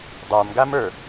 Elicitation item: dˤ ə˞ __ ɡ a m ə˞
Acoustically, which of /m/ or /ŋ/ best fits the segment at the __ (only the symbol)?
m